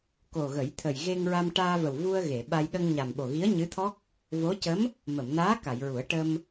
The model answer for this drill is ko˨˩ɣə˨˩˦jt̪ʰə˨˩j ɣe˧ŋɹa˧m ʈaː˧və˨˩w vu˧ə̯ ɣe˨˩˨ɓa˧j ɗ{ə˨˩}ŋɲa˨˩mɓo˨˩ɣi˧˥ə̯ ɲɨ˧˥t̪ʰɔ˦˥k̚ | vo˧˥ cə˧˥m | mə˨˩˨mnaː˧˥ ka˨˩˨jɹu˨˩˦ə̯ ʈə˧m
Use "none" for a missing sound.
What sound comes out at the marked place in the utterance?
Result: ə˧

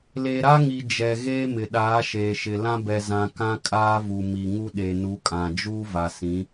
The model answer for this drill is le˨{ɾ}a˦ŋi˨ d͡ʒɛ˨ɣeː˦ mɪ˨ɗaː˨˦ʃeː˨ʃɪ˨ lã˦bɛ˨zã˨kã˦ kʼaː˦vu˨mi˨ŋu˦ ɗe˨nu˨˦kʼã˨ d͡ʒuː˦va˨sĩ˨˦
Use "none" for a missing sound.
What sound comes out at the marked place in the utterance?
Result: ɾ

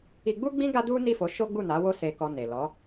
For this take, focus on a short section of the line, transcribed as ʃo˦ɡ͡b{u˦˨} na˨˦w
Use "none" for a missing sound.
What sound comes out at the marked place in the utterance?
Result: u˦˨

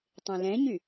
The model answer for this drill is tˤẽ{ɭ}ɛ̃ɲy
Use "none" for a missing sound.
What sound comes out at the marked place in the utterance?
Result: l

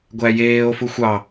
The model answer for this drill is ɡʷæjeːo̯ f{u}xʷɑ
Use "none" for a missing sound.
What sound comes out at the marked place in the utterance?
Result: u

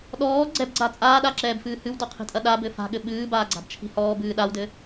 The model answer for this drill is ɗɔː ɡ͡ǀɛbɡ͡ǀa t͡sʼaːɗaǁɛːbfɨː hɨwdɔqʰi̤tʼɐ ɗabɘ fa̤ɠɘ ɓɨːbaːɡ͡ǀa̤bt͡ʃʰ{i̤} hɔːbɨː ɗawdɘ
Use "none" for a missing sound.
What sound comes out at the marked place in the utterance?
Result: i̤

